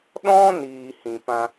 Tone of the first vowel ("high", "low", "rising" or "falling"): high